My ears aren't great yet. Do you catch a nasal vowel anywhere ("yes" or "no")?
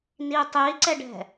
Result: no